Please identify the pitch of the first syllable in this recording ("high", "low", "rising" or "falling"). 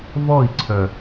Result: falling